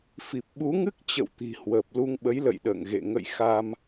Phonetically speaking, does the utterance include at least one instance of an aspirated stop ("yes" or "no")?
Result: no